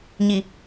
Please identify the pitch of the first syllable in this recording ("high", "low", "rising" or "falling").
low